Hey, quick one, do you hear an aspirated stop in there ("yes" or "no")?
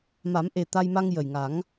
no